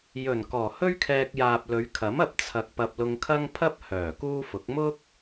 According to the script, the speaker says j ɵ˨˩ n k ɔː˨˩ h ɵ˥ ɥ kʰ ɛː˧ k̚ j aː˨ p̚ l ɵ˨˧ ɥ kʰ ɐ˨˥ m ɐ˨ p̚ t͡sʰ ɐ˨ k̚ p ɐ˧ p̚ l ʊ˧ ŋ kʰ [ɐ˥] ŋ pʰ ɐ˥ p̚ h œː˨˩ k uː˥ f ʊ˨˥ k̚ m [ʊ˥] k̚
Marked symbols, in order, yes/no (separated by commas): yes, yes